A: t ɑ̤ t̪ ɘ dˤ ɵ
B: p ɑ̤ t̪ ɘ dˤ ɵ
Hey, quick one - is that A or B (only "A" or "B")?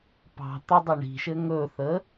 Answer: B